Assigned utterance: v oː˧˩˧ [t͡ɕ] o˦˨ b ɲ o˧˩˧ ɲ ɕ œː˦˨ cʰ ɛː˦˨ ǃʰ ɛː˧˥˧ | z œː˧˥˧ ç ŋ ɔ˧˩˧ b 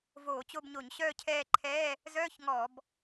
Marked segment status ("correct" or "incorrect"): correct